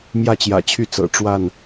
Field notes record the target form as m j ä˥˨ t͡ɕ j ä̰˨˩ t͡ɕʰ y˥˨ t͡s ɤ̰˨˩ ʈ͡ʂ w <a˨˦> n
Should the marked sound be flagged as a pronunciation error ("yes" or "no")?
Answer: yes